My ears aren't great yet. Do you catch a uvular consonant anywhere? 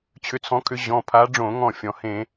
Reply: no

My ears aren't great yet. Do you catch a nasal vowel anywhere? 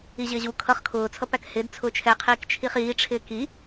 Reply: no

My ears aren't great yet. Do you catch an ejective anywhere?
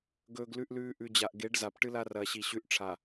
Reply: no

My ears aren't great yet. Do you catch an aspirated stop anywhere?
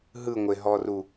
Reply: no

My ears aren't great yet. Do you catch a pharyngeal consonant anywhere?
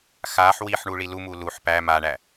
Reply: yes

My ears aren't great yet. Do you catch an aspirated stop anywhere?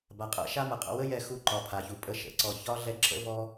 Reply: yes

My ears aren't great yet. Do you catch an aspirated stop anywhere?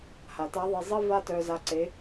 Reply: no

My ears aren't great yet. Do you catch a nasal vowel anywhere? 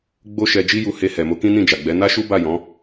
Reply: yes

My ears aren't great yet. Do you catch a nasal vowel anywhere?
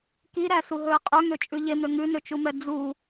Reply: no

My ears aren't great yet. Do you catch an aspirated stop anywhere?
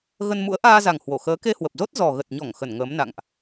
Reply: no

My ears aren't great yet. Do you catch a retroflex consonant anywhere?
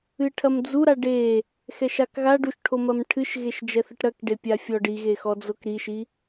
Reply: yes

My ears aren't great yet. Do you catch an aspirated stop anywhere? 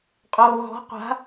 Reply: no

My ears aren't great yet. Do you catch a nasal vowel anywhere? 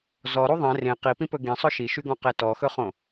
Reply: yes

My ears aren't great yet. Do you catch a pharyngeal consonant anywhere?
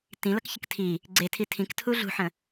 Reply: yes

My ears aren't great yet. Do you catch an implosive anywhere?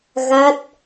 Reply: no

